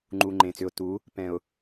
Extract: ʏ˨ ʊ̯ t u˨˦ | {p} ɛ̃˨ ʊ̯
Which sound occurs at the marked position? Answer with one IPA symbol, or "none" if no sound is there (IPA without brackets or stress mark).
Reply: p